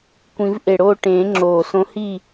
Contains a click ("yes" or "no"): yes